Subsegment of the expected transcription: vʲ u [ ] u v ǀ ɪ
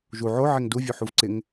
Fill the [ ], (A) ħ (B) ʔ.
A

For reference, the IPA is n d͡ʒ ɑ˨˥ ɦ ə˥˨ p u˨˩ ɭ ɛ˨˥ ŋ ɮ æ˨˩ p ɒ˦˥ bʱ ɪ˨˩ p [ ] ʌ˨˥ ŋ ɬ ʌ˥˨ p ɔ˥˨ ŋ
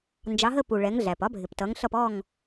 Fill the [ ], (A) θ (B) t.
B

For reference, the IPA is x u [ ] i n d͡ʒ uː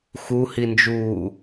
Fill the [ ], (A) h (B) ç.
A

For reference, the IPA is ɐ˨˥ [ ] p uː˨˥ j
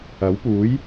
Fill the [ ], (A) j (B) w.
B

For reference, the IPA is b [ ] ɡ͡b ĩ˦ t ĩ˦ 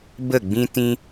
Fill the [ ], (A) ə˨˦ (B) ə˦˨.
B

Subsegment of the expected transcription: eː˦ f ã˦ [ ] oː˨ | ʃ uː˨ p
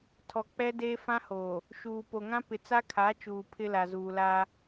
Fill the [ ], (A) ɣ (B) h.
B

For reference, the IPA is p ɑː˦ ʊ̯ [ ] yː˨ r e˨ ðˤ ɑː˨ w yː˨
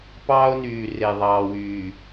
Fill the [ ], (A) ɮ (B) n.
B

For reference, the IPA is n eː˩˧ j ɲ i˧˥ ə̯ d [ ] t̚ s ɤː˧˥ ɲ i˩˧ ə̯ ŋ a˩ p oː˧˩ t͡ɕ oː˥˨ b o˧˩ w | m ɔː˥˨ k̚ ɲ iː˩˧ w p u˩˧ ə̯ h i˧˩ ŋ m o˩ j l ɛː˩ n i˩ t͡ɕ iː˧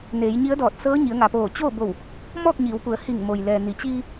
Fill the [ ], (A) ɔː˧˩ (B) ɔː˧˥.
A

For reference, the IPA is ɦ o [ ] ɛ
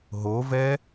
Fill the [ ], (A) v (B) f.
A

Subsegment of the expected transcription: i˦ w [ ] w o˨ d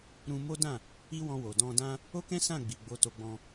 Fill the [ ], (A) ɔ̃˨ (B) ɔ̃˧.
B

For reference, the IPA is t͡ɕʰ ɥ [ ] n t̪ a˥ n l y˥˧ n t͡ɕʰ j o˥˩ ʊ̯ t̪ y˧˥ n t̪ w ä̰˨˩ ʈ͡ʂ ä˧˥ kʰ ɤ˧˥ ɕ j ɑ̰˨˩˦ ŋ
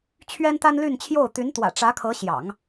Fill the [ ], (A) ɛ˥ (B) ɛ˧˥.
A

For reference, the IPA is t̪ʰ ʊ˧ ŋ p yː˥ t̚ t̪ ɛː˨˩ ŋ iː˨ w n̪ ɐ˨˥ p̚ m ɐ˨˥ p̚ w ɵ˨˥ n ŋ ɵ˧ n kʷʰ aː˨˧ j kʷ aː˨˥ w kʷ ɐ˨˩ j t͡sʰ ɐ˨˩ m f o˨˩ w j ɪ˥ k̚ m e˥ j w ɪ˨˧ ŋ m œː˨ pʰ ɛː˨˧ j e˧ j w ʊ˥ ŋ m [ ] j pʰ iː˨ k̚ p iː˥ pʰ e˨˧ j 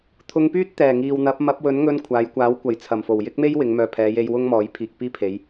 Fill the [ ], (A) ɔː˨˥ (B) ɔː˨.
A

